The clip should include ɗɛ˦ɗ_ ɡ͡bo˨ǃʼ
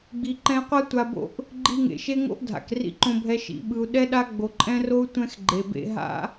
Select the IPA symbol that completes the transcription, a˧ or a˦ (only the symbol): a˦